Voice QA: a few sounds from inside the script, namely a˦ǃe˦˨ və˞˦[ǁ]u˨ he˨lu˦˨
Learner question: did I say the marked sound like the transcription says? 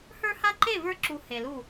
yes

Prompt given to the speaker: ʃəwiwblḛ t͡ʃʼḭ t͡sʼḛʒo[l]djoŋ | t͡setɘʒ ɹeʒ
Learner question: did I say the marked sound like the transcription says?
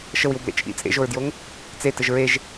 no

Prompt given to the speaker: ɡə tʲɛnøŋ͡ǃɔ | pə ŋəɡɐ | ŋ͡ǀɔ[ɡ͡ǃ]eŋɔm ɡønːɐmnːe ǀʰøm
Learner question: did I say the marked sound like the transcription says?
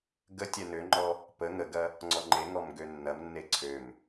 no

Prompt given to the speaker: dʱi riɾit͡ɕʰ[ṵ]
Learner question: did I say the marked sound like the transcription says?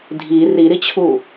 no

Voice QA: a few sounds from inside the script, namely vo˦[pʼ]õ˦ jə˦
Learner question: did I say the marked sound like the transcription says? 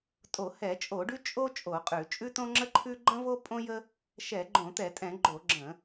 yes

